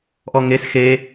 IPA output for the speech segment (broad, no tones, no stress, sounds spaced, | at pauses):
ʔ ɔ ŋ e s x e